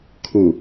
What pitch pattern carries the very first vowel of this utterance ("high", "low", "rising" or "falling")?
low